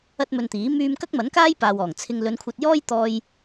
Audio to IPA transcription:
ɐ˥ t̚ m ɵ˧ n t̪ iː˨˥ m yː˧ m k ɐ˥ k̚ m ɐ˨˥ n k aː˥ j p aː˨ w ɔː˨˩ ŋ t͡sʰ ɪ˧ ŋ l ɵ˨˧ n kʷʰ ɐ˧ t̚ j ɔː˥ j t̪ ɔː˧ j

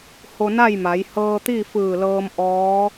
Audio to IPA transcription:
h o˧ n a˥˨ j m a˩˧ j h ɤː˧ t̪ i˥˨ f ɯː˧˩ l ɤː˧ m ʔ ɔː˧˥

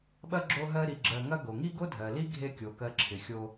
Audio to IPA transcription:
ɓ ɐ˥ ɡ͡ǁ o˦ ɦ ɜ˦ ɾ i˨ ɡ͡ǁ ɜ˨ ŋ ɐ˥ ɡ o˩ ŋ i˥ ɡ o˥ dʱ ɜ˩ l i˥ ɡʱ e˦ kʲ o˩ k ɜ˨ ǁʰ ɪ˩ xʲ o˨

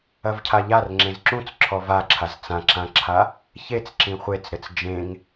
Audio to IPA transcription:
ɐ v cʰ a ʎ a r ŋ͡ǁ ẽ z ǁ ũ t͡s ǁʰ ɔ v a ǁʰ a z t͡s ã ǁ ã ǁʰ a | ç e t͡s ǁ ĩ χʷ e t͡s ɾ ɘ t͡s d͡ʒ ẽ ŋ

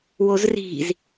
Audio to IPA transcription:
w o z r i̤ z

